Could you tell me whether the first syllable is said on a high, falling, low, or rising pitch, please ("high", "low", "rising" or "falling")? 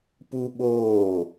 high